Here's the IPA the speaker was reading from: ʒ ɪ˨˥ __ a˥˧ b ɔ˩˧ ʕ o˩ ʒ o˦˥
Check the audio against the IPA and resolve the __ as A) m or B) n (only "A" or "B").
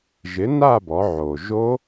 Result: B